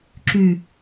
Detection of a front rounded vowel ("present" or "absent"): present